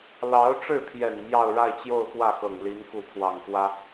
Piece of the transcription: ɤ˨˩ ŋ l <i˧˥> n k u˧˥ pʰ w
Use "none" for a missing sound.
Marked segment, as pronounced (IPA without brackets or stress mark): i˧˥